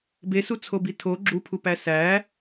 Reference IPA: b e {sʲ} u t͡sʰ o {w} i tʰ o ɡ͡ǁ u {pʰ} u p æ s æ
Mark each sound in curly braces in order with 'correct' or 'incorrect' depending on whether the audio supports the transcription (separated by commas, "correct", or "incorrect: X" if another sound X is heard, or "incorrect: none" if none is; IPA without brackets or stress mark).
incorrect: s, incorrect: b, correct